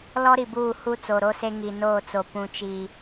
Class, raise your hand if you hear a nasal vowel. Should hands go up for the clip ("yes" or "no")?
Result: yes